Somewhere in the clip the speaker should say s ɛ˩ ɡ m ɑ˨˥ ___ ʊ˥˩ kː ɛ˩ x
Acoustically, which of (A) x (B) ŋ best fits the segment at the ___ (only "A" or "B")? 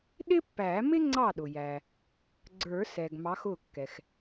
A